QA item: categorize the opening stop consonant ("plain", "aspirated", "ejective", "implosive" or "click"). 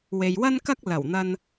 plain